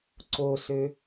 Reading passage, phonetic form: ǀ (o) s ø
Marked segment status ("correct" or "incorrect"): correct